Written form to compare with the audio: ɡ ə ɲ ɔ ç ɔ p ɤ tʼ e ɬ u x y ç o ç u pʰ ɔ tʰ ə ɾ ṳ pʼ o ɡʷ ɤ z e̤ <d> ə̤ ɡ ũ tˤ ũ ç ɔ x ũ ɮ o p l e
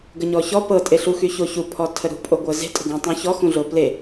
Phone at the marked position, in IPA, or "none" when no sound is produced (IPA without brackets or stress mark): tʼ